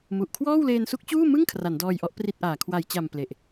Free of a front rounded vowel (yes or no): yes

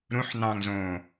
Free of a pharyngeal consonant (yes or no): no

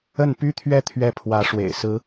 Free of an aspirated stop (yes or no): no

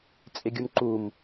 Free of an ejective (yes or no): no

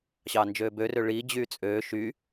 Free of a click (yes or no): yes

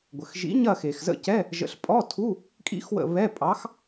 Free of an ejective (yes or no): no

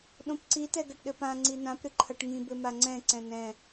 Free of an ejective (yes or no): yes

